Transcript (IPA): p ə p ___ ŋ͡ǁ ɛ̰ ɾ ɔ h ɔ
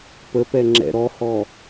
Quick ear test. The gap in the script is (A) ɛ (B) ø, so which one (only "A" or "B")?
A